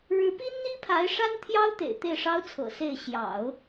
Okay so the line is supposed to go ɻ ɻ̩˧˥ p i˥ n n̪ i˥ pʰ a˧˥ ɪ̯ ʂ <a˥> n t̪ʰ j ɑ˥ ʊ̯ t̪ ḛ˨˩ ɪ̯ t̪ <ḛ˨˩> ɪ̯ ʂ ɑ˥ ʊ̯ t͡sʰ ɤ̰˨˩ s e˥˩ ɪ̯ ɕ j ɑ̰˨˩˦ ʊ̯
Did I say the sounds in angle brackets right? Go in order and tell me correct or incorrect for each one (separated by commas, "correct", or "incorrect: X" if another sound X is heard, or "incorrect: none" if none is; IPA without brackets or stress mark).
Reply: correct, incorrect: e˥˩